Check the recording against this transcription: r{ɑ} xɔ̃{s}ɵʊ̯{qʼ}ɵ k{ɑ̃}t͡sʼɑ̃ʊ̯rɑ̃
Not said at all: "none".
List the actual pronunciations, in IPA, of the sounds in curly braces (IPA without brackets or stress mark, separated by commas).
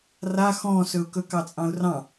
a, s, k, ɑ